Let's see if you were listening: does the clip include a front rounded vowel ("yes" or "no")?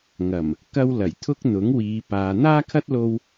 no